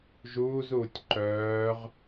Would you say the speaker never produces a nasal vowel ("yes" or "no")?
yes